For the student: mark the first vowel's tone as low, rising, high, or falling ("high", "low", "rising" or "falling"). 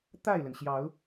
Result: falling